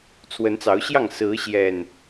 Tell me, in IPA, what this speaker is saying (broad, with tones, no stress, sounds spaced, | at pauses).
t͡sʰ w ə˨˦ n t͡s ɑ˨˦ ʊ̯ ɕ j ɑ˥˨ ŋ s ɹ̩˨˦ ɕ j ɛ˨˩ n